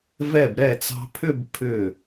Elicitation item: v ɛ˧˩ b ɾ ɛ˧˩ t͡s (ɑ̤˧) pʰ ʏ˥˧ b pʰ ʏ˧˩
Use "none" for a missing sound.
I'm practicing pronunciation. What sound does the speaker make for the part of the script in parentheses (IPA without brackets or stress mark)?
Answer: ɑ̤˧